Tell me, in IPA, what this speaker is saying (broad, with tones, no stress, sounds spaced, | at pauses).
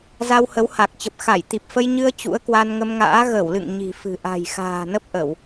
z a˧ w h ə˨˦ w h a˨˩ k̚ t͡ɕ ə˨˩ p̚ x a˧˩ j t̪ i˨˩ p̚ f ə˧ j ɲ ɨ˧ ə̯ t͡ɕ ṵ˧˥ ə̯ k w a˧ n ŋ ə˧ m ŋ a̰ː˧˥ ɣ ə˧˩ w l ɨ̰˧˨ ŋ ɲ i̤˨˩ f ɨ̤˨˩ ʔ a̤˨˩ j x a̤ː˨˩ n ə˦˥ p̚ ʔ ə˧˩˨ w